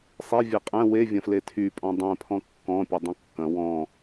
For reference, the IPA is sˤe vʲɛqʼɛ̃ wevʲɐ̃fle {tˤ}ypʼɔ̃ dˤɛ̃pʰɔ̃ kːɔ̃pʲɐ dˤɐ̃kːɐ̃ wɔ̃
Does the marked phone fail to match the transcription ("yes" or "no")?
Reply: yes